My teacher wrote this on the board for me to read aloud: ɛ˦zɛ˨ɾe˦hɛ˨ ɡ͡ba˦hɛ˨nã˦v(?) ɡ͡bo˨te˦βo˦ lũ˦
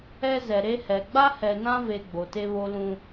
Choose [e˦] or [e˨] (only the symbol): e˨